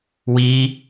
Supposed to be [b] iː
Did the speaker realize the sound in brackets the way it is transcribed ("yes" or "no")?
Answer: no